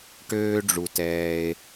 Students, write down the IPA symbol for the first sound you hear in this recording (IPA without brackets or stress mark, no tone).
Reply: ʈ